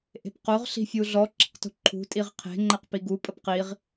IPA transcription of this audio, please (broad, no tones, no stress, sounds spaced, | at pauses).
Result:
ʔ e̤ p q o ʁ ɬ i̤ fʲ u ɮ ɔ ǁ ə̤ q t ṳ ǃʰ ṳ tʼ i ʁ qʰ e̤ ŋ͡ǃ ɛ q p i ɡ u pʼ ə p q i ʁ